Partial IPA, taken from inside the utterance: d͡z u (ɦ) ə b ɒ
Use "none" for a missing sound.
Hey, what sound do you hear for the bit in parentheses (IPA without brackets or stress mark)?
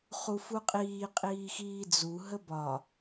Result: ɦ